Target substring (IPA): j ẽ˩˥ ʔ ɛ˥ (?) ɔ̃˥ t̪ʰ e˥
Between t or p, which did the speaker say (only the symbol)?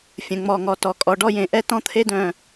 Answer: t